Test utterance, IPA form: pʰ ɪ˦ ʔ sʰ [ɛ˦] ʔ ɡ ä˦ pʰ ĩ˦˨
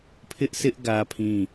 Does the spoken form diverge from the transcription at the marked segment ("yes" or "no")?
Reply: yes